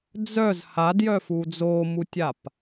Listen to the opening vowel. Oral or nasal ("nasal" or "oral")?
oral